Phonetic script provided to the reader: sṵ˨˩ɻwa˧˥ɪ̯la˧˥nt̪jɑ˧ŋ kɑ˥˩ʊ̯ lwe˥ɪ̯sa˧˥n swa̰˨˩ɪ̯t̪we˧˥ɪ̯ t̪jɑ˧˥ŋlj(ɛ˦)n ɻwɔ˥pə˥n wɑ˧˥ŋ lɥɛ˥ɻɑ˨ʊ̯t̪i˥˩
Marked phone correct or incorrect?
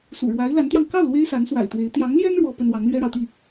incorrect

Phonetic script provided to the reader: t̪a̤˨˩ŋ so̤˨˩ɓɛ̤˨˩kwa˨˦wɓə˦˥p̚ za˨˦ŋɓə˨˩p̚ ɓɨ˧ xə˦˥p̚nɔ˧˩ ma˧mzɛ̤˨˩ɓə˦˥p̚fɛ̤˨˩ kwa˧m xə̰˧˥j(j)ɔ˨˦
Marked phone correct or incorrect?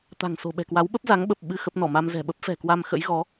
incorrect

